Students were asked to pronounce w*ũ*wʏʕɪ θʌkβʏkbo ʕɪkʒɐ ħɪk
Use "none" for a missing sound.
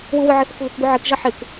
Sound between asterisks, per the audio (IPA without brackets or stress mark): u